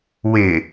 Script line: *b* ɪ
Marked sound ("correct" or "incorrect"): incorrect